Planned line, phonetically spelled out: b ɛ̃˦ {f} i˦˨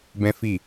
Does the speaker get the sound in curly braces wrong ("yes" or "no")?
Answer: no